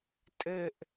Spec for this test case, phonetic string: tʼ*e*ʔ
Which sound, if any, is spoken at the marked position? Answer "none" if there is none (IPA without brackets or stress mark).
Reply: ɘ